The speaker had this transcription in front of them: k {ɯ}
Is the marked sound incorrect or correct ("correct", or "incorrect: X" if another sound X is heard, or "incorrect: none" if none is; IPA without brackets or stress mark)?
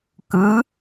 correct